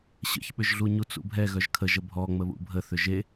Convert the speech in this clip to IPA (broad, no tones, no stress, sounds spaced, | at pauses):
ɕ ə̰ ç ɓ ʏ ʒ ɮ u ɲ u t͡s ṵ bʱ ɛ ɣ œ ʒ kʰ ə ʒ ə bʱ ɔ ŋ͡m ə β ṵ bʱ ə θ ʏ ʒ e